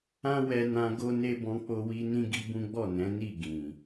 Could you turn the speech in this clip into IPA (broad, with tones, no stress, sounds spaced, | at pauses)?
ã˦ w ɛ˧ n ã˧ ɡ o˦ n e˦ b ɔ̃˧ k͡p o˧ w i˧ n ĩ˦ ɡ i˦ b ũ˦ ɡ͡b ɔ˦˨ n ɛ̃˨˦ n i˦˨ ɡ ĩ˨